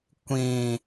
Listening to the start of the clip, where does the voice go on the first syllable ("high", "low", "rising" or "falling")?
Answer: high